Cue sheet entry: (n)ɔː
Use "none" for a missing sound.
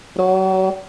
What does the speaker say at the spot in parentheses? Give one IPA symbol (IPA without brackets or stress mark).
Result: ɾ